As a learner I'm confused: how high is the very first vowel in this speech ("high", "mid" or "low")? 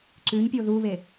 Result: high